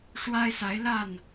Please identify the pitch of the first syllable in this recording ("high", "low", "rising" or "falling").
high